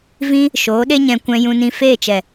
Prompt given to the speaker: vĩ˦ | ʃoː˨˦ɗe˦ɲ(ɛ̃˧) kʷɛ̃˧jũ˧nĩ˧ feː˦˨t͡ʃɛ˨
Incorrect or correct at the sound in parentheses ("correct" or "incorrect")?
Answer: correct